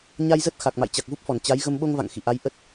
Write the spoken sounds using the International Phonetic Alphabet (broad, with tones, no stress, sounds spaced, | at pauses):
ɲ a˧ j z ə˦˥ t̚ x a˨˩ k̚ m a̰˧˨ j t͡ɕ a˨˩ k̚ v u˦˥ p̚ f ɔ˧˩ n t͡ɕ a˨˦ j ɣ ə˧ m ɓ o˧ ŋ v a̰˧˨ ŋ x ḭ˧˨ ʔ a˨˦ j ʔ ə˦˥ t̚